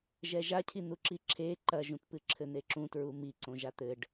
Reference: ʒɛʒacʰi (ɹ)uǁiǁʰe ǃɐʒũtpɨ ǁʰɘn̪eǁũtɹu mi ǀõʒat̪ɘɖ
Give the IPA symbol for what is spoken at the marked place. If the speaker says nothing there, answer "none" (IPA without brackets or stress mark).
n̪